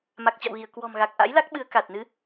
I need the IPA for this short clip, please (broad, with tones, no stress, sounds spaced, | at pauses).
m a˨˩ k̚ t͡ɕ a̰˧˨ w ɣ i˧˩ ə̯ k w ɔ̤˨˩ m ɣ a˨˩ k̚ ʔ a̰˧˥ j l a˦˥ k̚ ɓ ɨ˨˦ ə̯ k a˨˩ t̚ n ɨ˨˦